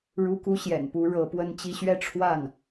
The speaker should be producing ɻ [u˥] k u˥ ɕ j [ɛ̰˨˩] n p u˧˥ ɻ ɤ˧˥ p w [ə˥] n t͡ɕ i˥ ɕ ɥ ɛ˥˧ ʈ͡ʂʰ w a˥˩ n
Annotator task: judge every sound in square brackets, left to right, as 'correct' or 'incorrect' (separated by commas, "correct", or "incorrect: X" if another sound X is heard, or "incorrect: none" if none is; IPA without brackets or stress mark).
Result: correct, correct, correct